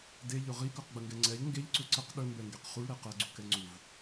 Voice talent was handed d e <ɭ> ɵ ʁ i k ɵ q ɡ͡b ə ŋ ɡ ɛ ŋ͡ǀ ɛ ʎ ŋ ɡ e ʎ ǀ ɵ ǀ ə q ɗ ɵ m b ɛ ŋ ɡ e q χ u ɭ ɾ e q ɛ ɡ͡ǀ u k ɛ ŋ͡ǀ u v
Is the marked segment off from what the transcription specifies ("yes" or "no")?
yes